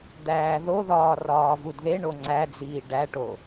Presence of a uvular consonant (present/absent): absent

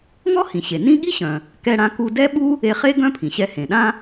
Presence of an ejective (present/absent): absent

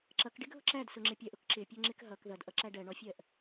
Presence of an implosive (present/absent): absent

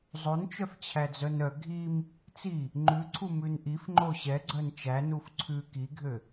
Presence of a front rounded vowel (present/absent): present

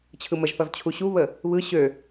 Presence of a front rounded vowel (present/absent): present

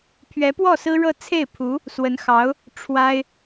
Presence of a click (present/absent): absent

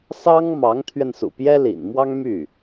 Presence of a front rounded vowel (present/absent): present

